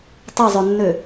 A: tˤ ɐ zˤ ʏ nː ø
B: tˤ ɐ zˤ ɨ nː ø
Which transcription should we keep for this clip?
A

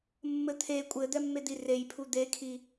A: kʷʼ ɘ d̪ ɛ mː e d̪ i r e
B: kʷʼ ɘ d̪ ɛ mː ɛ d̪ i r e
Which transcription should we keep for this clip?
A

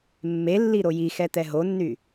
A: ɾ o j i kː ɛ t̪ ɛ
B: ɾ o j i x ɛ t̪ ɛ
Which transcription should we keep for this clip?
B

